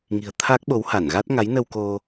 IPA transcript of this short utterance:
ŋ i̤˨˩ ə̯ t̪ʰ a˦˥ k̚ ɓ o˨˦ w h a˧˩ n ɣ a˦˥ t̚ ŋ a˨˦ j n ə˧ w k o˧

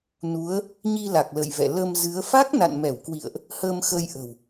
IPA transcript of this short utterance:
n u˨˦ ə̯ | ɲ i˧ l a˨˩ k̚ l ə̰˧˨ j v ɛ̰˧˨ l ə˧ m z ɨ˨˦ ə̯ f a˦˥ k̚ n a̰˧˨ n m ɛ˧˩ w k w ḭ˧˨ ə̯ ʔ | h əː˧ m x ə˧ j ʔ ə̤˨˩ w

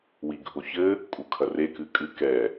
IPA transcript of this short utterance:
w i ɡʱ o ç ɘ | kʼ u kʰ ɐ r e k ɨ kʼ ɨ k ɛ

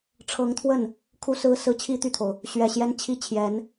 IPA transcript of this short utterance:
ʈ͡ʂʰ ɤ˧˥ ŋ t̪ʰ w ə˥˩ n | kʰ u˥ s ɹ̩˥ s ɹ̩˥ t͡ɕʰ i˥ t̪ y˥˩ t̪ʰ o˩ ʊ̯ | ɕ ɥ ɛ˨˩ ɕ j ɛ˥ n t͡ɕʰ i˥ t͡ɕʰ j ɛ˧˥ n

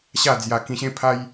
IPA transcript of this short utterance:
ɕ a˥˧ d͡z j a˧ k ĩ˧ ɕ ẽ˦ pʰ a˦ j

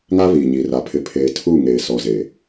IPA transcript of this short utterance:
ŋ a˦ β iː˨ ɲ iː˨ r a˨ pʰ ɪ˨ pʰ eː˨ tʰ u˦˨ ŋ eː˨ s ɔ˨ z eː˨

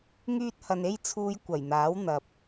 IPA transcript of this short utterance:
ŋ yː˧ t̚ h ɐ˨ n e˥ j t͡sʰ uː˧ j kʷ ɐ˨˩ j n̪ aː˨˥ w n̪ ɐ˨ p̚

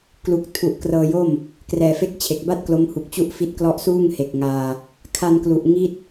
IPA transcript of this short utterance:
k l u˨˩ k̚ tʰ u˨˩ ʔ k r ɤː˧ j o˥˩ m | k r ɛː˨˩ f e˥˩ k̚ t͡ɕʰ e˨˩ k̚ b a˥˩ t̚ k l o˦˥ m h u˨˩ k̚ t͡ɕ u˥˩ ʔ f i˦˥ t̚ k l ɔ˦˥ ʔ s uː˥˩ ŋ h e˨˩ k̚ ŋ aː˧ | kʰ a˧ n k l u˨˩ ʔ ŋ i˦˥ t̚

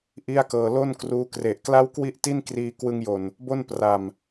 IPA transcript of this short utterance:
ʔ i˥˩ a̯ k ɤː˧ l o˥˩ n k r uː˦˥ k r e˨˩ ʔ k l a˥˩ w k w i˥˩ ʔ t i˥˩ n k r iː˧ k w ɯ˧ ŋ j o˨˩ n | b o˥˩ n p r a˨˩ m

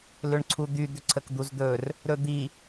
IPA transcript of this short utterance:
l ʏ ɳ ǀʰ u d̪ y d̪ ʏ ǀʰ ə k d̪ u z d̪ ɵ r | ɾ ɵ d̪ i

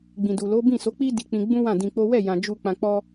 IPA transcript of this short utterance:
ɡ͡b ĩ˨ d u˨ l o˨˦ b ĩ˦˨ s o˨˦ k͡p i˦ d i˧ k͡p ĩ˧ ɡ͡b ũ˦ w ã˦˨ d ĩ˧ k͡p o˦ w ɛ˦˨ j ã˨ d͡ʒ u˧ k͡p ã˧ k͡p ɔ˦

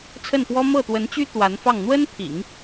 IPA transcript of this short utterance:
t͡sʰ ə˥˩ n p w ɔ˥ m ɤ˥˩ t̪ w ə˧˥ n t͡ɕ y˥ t̪ w a˧˥ n f ɑ˥˩ ŋ n̪ w ə˥ n pʰ ḭ˨˩˦ ŋ

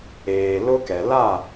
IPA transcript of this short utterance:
eː˨ l ʊ˦ k ɛ˨ l a˦˨

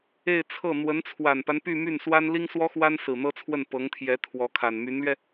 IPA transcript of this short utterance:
e˥˧ ɪ̯ t͡sʰ ɤ˥˩ n̪ w ə˧˥ n t͡sʰ w a˨˩ n p a˦ n p y˥˧ m y˥˩ n s w a˥ n l i˥ ŋ s w ɔ˥ x w a˥ n s ɹ̩˨˩ n̪ ɤ˥ t͡sʰ w ə˥˩ n p ɤ˧˥ ŋ t̪ʰ j ɛ˧˥ t̪ʰ w ɔ˧˥ kʰ a˨˩ n m y˧˥ n l ɥ ɛ˧

